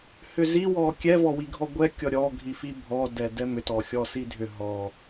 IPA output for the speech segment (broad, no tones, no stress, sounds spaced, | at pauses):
h ʏ z i w ɔ kʲ ɛ v ɔ w i ɡʱ ɔ ɡʷ ɛ kʲ ɔ ɾʲ ɔ ɡʱ i f i bʱ ɔ d ɛ d ɛ m ʏ t ɔ xʲ ɔ s i dʱ ʏ ɦ ɔ